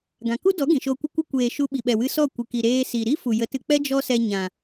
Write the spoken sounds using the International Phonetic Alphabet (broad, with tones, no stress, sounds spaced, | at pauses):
ɡ ã˨ k u˦ d ɔ˨˦ ɡ ĩ˨ ʃ o˧ kʷ ə˦ kʷ ə˦ kʷ eː˨ ʃ u˧ ɓ i˨ ɓ ɛ˨ w ɨ˧ s ɔ˦˨ kʷ ɨ˨ k i˨ ɾ eː˧ s i˨ ɾ i˦ f u˨ j ə˨˦ t ɨ˧ k͡p ɛ˦ d͡ʒ ɔ˦ s ɛ˧ ɲ ã˨